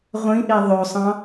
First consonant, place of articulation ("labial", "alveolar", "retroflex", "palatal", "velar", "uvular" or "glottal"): uvular